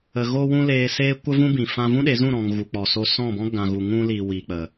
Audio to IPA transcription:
ə˨ ɣo˦wũ˦ leː˧ seː˦ kʷə˦vũ˦bĩ˨ fã˧vũ˦ɗe˨˦ zũ˦˨ɾɔ̃˨ŋ ɣu˨k͡pɔ˨so˧ sɔ̃˦˨bɔ̃˦ ɡã˨ɣu˨ŋũ˧li˨ wi˨k͡pə˨

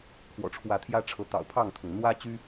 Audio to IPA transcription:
kʰwɔ̰˨˩ʈ͡ʂʰwä˨˦t̪ʰjä˦ʈ͡ʂʰɤ˨˦ t̪ɑ̰˨˩ʊ̯pʰɑ˥˨ŋt̪ʰʊ˩ŋ n̪wä˦t͡ɕy˦

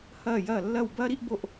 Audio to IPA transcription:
hɐː˦˨jɐː˦˨ lːɐ˦˨wbɐː˦ɾi˦ʔ bo˦˨ʔ

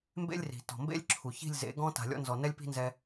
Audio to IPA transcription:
mbḛ˦lʲri̤˨ tɔ̤˨ mbḛ˦lʲǁʰu˨çi̤˦˨lʲzḛ˨˦ ɡɔ̃˦ ta̤˨lʲɔ̰˧nzɔ˨ nɛ˦lʲpi̤˦nzɛ˧

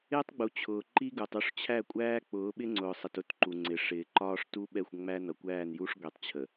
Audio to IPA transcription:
ɪː˦tˤɡ͡bu˨ t͡ɕʰʊː˨ǃi˦ɡu˨tˤ u˦ʂt͡ɕʰæ˦˨kʷʼæː˦ k͡pʊː˨˦ɓɪ˦ŋ͡ǀʊː˨sˤə˨t ʊ˦tǃu˨ŋ͡ǀɪ˨ ʂɪː˨ ǃɒː˦ʂtu˦ɓɛ˦˨xʷ ŋ͡mæ˦nʌ˨kʷæː˦˨n ju˦ʂ ɡʷi˨tˤt͡ɕʰə˨

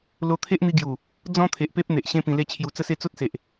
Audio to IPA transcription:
lo˧t̪ʰe˦ʔn̪i˧ɡju˨˩ | d͡zɔ̃˦ t̪ʰe˨ʔpe˦p̚ n̪e˨ʔɕẽ˦ pĩ˧le˦t͡ɕʰju˧ t͡sə˥˧se˥˧ t͡so˦t̚se˨ʔ

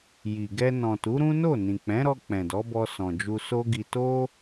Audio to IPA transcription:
ji˨ɡɛ˧ nɔ̃˨tu˨˦ɾũ˦no˦˨ nĩ˨k͡pɛ̃˨˦ɾɔ˧ k͡pɛ̃˨dɔ˨˦bɔ˧ sɔ̃˨d͡ʒu˧so˦ɡi˧ to˦

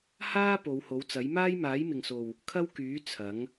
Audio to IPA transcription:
haː˥ po˨˧who˨˥wt͡sɐ˨˥j maː˥jmaː˨˥jmɪ˨ŋso˨w | kʰɐ˥wkyː˨˥ t͡sʰɐ˨˥ŋ

